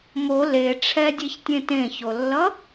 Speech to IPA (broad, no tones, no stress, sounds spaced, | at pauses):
m o l e ʈ͡ʂʰ ɛ dʲ e ç tʲ ẽ t ẽ ç o lː ʌ